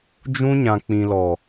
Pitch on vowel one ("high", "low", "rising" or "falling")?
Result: high